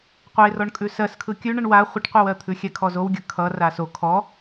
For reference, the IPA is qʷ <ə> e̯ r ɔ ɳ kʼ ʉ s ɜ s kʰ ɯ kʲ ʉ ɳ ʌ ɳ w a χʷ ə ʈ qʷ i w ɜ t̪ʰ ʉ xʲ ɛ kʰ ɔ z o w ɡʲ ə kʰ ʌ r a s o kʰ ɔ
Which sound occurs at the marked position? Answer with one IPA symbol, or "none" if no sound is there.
ə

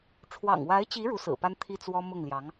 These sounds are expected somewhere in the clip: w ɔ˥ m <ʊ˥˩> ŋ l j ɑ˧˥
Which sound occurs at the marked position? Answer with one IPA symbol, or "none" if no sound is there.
ʊ˥˩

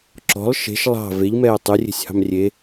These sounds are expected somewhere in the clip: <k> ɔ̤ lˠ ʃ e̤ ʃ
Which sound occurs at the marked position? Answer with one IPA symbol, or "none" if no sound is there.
ǁ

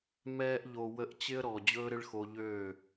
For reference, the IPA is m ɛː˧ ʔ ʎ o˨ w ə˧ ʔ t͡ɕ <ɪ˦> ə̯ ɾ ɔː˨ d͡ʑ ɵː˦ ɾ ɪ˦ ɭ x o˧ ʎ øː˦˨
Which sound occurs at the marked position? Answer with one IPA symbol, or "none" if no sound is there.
ɪ˦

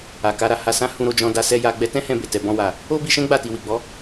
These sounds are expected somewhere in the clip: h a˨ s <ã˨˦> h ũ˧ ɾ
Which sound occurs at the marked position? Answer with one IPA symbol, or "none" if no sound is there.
ã˨˦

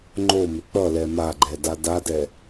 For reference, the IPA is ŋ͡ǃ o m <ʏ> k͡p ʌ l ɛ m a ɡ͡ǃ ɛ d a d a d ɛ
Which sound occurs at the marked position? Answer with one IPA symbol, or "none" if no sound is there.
ʏ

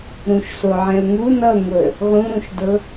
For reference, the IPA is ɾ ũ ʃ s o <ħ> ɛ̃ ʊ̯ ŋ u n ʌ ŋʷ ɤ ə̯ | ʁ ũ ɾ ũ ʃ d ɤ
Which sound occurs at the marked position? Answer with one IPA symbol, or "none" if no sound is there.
ʕ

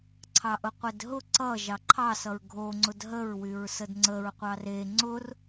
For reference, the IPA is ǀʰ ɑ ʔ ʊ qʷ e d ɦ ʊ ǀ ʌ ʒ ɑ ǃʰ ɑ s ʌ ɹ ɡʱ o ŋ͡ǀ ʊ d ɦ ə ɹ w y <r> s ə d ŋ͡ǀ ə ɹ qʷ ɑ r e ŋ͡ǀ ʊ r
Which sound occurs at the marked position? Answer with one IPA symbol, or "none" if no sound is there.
ɹ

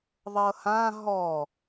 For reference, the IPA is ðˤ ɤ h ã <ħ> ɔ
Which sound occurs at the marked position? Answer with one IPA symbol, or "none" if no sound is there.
ɦ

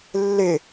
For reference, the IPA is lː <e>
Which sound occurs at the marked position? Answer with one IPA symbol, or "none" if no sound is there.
e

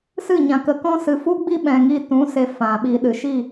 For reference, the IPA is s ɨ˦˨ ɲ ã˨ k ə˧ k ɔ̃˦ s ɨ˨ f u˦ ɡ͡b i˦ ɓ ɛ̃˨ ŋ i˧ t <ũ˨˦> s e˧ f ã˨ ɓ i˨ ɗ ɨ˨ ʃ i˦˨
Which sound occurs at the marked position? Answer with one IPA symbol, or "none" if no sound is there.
ũ˨˦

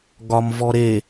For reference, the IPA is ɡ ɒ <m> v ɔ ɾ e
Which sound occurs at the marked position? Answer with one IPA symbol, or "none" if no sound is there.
m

